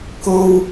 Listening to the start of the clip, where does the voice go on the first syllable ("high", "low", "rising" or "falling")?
high